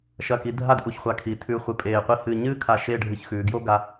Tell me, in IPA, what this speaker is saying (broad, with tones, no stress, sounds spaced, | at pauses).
ʃ ɐ˧˩ k i˩˧ dʱ a˥˧ d ʔ u˧˩ ç χʷ a˧ kʰ i˩˧ tʰ ʉ˧ χʷ ɨ˧˩ pʼ eː˧˩ qʷ i˥˧ h ɨː˧ ɲ ɨː˥ kʰ a˧˩ ʃ e˥˧ ɖʱ ɨ˧˩ ç x ʉː˩˧ ɡ j o˥ ɡ a˧